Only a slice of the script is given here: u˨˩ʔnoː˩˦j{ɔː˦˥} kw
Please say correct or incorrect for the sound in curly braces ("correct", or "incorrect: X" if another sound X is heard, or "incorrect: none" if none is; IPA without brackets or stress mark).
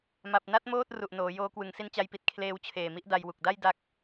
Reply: incorrect: oː˦˥